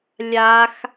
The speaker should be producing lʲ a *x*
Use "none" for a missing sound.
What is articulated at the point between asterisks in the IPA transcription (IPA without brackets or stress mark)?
x